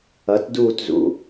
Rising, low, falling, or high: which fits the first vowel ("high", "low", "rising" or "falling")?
rising